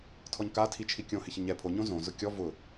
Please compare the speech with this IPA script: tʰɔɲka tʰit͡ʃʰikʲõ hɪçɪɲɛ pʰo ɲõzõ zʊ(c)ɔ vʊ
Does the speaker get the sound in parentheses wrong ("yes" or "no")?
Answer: yes